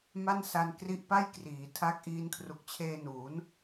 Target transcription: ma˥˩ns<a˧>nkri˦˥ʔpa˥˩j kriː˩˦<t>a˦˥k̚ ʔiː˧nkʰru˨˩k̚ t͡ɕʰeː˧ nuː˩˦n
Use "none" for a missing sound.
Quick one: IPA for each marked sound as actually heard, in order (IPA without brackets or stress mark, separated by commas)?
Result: a˧, tʰ